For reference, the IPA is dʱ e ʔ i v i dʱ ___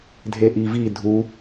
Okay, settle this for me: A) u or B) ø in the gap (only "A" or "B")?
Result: A